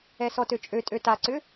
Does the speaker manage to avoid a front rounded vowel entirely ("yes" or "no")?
no